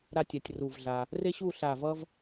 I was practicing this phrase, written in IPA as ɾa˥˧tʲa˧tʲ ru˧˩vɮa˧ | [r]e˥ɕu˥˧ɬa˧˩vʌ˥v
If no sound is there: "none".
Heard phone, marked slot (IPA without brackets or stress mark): r